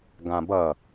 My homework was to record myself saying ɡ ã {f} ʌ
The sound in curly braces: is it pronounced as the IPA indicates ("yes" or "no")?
no